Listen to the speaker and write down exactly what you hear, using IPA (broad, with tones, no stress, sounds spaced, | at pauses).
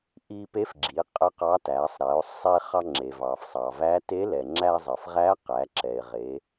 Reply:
ʔ i˧ p e˧˥ f ɡ͡ǁ i˩˧ qʼ ə˧˥ q ɑ˧˥ t æ˩˧ sˤ ɾ ɛ˩˧ o̯ sˤ e˧ χ ɑ˧ ŋ͡ǁ e˩ v ɑ˩ f sˤ ɑ˩ v æ˧˥ t e˧˥ l ɛ˩ ŋ͡ǁ æ˧ zˤ ə˩ f ʁ æ˧˥ q æ˩˧ ǁ ɛ˩ e̯ ʁ e˩˧